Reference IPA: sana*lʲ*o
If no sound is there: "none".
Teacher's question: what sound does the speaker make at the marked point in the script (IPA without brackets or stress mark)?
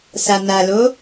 l